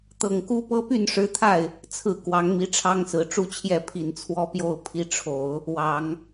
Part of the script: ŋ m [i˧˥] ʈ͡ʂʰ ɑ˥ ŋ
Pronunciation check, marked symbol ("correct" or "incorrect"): correct